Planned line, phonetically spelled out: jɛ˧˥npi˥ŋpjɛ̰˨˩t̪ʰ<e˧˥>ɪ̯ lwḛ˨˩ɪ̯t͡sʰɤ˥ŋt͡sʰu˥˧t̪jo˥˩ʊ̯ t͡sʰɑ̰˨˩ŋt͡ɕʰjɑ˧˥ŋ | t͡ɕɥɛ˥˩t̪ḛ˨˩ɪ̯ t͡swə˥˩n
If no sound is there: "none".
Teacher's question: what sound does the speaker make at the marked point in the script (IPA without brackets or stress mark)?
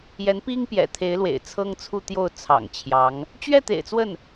e˧˥